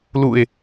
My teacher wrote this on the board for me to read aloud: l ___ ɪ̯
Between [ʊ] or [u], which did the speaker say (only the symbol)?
u